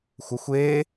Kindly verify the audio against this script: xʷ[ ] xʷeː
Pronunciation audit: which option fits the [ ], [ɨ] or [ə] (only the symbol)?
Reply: ə